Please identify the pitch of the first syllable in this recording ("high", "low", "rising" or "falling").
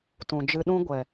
low